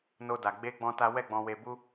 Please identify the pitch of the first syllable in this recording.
high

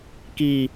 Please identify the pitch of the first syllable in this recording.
low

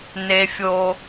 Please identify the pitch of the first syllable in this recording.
high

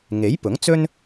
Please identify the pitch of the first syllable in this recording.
rising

